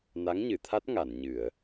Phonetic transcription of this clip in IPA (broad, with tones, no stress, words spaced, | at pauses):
na˧˥ŋɲɨ˨˩˨t̪ʰa˦˥t̚ ŋa˨˩˨nɲɨ˨˩˨ə̯